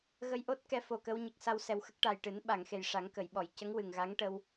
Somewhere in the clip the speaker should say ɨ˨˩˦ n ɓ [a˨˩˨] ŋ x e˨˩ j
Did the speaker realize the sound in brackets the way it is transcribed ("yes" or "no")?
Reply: yes